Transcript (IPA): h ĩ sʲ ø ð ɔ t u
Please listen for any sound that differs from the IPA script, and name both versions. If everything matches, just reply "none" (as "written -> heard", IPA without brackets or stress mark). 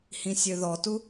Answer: none